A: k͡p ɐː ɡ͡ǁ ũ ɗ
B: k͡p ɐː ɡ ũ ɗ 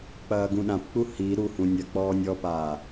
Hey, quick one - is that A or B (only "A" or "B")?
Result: B